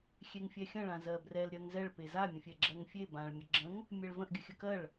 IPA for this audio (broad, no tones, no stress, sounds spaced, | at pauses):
xʲ e ŋ fʲ ɛ xʲ ə̃ ɭ ã z ɜ b r ɛ l ɾʲ ɜ ŋ z ɛ ɭ p e z a mʲ ə̃ fʲ ɛ ɡ͡ǁ ɜ ŋ fʲ e b ã ɭ mʲ ə ɡ͡ǁ ə̃ ŋ | mʲ ɛ ɭ v ə̃ ʔ ɡʲ ə xʲ ə k ɜ ɭ